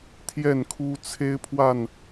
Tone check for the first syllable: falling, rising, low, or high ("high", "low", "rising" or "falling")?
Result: falling